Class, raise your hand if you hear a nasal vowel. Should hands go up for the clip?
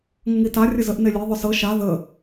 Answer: no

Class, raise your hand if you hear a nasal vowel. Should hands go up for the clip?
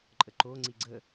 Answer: no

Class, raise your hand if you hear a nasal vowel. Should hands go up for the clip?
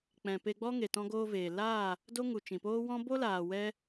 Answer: yes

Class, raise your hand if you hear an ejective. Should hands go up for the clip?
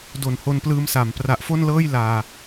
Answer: no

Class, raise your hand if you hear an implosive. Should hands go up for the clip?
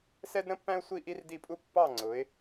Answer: no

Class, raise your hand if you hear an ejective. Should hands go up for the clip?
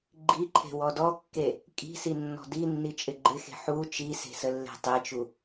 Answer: yes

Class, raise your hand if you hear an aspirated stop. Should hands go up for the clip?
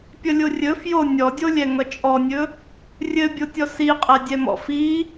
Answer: no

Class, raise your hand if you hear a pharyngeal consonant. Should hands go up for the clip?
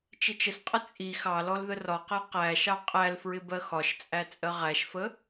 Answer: no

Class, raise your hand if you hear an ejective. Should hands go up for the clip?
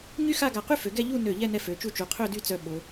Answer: no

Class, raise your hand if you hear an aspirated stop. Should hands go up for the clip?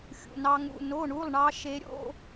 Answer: no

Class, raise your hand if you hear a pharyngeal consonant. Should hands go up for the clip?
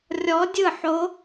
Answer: yes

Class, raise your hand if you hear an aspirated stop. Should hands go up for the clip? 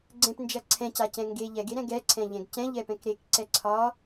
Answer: yes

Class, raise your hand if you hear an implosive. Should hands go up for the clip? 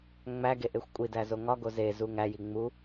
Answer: no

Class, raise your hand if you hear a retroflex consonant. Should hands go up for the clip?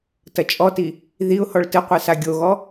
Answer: yes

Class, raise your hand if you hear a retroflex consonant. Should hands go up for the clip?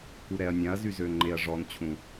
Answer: yes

